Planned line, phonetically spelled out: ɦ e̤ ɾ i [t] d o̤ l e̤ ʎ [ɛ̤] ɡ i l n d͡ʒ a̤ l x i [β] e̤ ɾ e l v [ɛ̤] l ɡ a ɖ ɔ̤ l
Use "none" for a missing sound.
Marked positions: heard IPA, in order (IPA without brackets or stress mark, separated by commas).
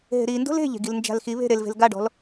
n, e̤, β, e̤